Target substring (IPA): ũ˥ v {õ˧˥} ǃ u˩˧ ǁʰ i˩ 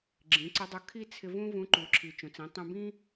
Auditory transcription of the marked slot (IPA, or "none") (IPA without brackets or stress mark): ũ˧˥